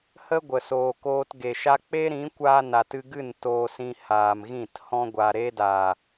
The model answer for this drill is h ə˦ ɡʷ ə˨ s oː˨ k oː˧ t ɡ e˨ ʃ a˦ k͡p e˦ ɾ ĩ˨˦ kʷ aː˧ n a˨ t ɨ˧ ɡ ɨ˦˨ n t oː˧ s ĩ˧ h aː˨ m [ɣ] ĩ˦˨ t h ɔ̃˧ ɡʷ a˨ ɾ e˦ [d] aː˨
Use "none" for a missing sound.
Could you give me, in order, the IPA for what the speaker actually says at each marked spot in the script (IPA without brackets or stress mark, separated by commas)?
ɣ, d